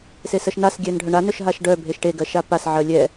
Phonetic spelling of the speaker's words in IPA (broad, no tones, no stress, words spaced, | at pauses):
sesɜʃnas ɡʲɛnɖʱœɳa nœʃɦaʃɖœ bʱeʃʈe ɡɜʃapas ʕɜlʲɛ